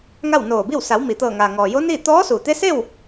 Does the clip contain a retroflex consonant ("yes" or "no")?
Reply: no